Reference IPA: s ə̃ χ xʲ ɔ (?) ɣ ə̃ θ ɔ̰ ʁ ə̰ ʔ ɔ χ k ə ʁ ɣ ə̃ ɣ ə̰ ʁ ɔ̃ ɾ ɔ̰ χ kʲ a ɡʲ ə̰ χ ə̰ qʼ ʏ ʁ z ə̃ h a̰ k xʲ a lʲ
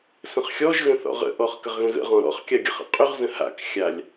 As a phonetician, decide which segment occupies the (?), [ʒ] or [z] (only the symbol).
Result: ʒ